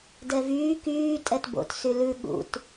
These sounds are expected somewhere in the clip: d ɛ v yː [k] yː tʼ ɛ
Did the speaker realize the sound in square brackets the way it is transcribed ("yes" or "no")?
yes